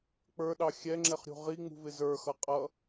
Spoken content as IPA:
k͡p ə˞ ɗ ɑ xʲ ɛ ŋ͡ǁ ɛ χ ɾʲ ṳ ʁ i ŋ͡m ṳ v ɪ z ə˞ x ʌ qʼ ʌ

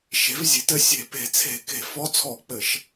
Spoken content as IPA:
ʃ e̤˩˥ v zʲ e̤˩˥ t ɘ˧˥ sʲ e̤˧˩˧ p e̤˧˩˧ t͡sʰ e̤˧˩˧ k e̤˧˩˧ f ɔ˧˥ t͡sʰ ɔ˧˩˧ k͡p ɘ˧˩˧ ʃ

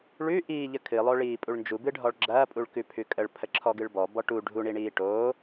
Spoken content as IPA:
ɭ ʉ ʔ iː ʎ ə kʰ ɨ lˠ o ɭ iː pʼ u ɭ n d͡ʒ u b ɨ ɖʱ ɔ ɭ ɡ͡ǁ ɐː pʼ u ɭ k ʉ pʰ ʉ kʼ ə ɭ pʰ ə ǁʰ ɔ ɡ ɨ ɭ b ɔ b ɔ ʈ u ɖʱ u ɳ i ɳ iː ʈ oː

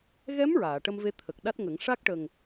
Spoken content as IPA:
ɣ ɛ˧˥ m ɹ aː˨˩˨ ʈ ə˧ m v e˧ t̪ʰ ə˨˩ k̚ ɗ a˦˥ t̚ ŋ ə˨˩˦ ŋ ʂ a˦˥ k̚ ʈ ə˨˩ ŋ

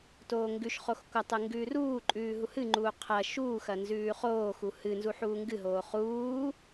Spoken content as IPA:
t oː ŋ ɡ ʉ ʃ χ o x kʷ ɐ tˤ ɨ ŋ ɡ ʉː r uː ǃʼ ʉː ɦ u h ɨ ŋ͡ǃ uː qʰ ɐ ʃ uː x ɐ n z ʉː χ oː x u h ɨ n z u ħ uː ŋ ɡ ɨ ɦ oː χ uː

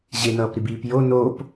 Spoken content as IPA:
ʑ e n ʌː p ɾ i b iː p j o n o p

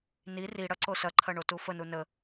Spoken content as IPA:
n i r i ɽ ɐ ǀ o s ɐ ǃʰ ɐ ɳ o t u f ə n u n ə

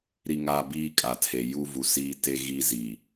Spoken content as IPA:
ɾ i˦ ŋ a˦ b iː˦ kʼ a˨ tʰ e˨ j u˦ v u˨ s iː˦ t e˦ ɣ i˦ z iː˨

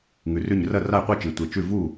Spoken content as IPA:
ŋ ʉ˩ r ʉ˥˩ ɲ r ɐ˥˩ r a˥˩ j qʷ i˥˩ t͡ʃ i˩ tʷ e˩ t͡ʃ ʉ˥˩ v u˥˩

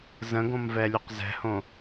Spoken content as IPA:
z ə̃ ɡ õ m v ɛ lʲ u q z ɛ̤ h õ

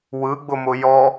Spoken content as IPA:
w ɯ ɡ͡b ʊ m ʊ j ɔ

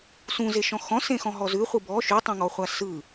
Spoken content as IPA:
s ũ z e ʃ ɔ̃ x ɔ̃ s ẽ x ɔ̃ ɦ ɔ z ʉ χʷ ɯ b ɔ ʃ ʉ tˤ ẽ ŋ ɔ χʷ a s ɯ

